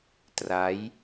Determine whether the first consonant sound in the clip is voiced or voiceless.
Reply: voiceless